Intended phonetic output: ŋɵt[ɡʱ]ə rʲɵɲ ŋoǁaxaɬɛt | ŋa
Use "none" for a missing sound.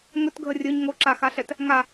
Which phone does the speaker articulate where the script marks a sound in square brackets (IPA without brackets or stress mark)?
ɡʱ